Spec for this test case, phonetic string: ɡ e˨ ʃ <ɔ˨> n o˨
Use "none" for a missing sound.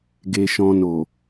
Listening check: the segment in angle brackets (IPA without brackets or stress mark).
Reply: ɔ̃˨